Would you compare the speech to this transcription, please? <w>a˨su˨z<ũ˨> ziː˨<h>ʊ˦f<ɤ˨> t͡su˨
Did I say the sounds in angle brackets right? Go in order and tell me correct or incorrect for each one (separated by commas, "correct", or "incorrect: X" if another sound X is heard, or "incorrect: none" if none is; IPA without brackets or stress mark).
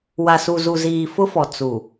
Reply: correct, incorrect: u˨, incorrect: f, incorrect: ɔ˨